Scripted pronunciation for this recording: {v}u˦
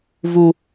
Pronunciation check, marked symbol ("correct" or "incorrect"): correct